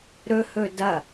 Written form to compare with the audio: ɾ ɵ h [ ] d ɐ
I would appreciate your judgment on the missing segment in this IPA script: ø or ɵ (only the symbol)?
ɵ